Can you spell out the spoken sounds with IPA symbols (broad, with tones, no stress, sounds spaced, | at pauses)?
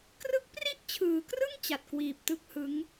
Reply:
k r ɯ˦˥ k̚ p r i˥˩ ʔ t͡ɕʰ ɯː˩˦ k r ɯ˥˩ ŋ t͡ɕ a˨˩ t̚ k w iː˨˩ p̚ t ɯ˦˥ k̚ h ɯ˦˥ ŋ